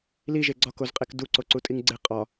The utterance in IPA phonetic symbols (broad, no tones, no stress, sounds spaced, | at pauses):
l i ʒ e ɡ͡ǀ ɒ k o z qʼ e k d u ǀ o ǀ u tʼ i ŋ ɡ͡ǀ e qʼ ɒ